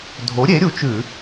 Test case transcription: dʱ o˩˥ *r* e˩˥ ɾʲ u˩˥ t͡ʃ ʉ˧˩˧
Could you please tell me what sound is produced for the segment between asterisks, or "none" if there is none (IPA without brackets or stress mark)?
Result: ɾʲ